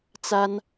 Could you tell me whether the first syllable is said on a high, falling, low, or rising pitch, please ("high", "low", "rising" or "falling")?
high